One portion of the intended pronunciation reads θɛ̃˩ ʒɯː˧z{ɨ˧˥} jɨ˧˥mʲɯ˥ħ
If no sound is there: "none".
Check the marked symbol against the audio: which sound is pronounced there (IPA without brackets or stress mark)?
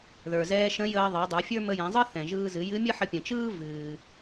ɨ˩˧